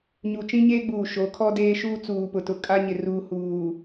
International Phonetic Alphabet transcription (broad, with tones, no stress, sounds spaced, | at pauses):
ɲ u˨ t͡ʃ ĩ˦ ɲ eː˦ ɡ͡b uː˨ ʃ o˨˦ kʰ ɔ˦ d eː˦ ʃ uː˦ t͡s uː˨ p ʊ˨ t ʊ˨ kʼ a˦ ɲ ɪ˨ r uː˨ h uː˨